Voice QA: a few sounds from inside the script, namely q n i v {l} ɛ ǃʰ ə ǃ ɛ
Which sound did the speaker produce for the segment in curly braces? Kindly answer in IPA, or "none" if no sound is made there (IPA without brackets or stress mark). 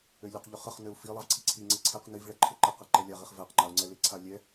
ɭ